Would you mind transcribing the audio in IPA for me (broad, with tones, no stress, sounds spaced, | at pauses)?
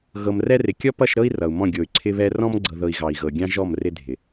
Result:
ɣ ɤ˨ m r ɛ˦ r ɪ˨ kʲ ɔ˦ p ʌ˦˨ ʃ ɾ ɤ˦ i̯ r ʌ˨ u̯ m ɔ̃˦˨ ɡʲ o˨ y̯ ǀʰ ɪ˦ β ɛ˦ r ɔ̃˦ m ɡ͡ǀ ɤ˨ ð ɤ˨ i̯ ɣ ɑ˨ i̯ ɣ ɤ˨ ɡʲ ɑ̃˦ ʒ ɔ˦˨ m r ɪ˦ dʱ ɪ˨